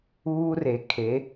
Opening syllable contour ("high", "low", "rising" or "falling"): high